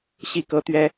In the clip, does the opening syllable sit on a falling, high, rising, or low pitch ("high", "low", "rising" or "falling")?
falling